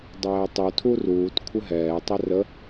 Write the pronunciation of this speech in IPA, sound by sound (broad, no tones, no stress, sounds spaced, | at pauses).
dˤ ɛː tˤ u tʰ u r uː t kʷʰ ɘ ɦ ɛː tˤ ɛ r ə